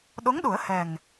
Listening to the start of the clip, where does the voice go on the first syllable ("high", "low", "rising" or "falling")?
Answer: rising